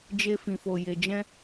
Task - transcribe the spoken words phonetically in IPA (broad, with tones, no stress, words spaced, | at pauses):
d͡ʒe˧fĩ˨fo˨ je˨d͡ʒɛ̃˧